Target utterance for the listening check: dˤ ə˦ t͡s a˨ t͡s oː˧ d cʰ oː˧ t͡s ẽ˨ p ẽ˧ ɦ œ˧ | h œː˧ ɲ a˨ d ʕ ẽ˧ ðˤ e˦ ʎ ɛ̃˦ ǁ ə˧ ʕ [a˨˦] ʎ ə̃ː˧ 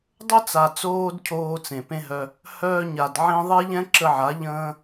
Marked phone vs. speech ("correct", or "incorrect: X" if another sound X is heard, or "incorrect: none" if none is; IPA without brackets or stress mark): correct